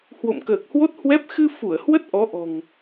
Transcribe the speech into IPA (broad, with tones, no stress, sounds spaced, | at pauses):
h w o̰˧˨ m k əː˨˩ k̚ h w o˦˥ t̚ h w ɛ˦˥ p̚ x ɨ˧ f u˧˩ ə̯ h w ə˦˥ t̚ ʔ ɔ˨˦ ʔ ɔ̤˨˩ ŋ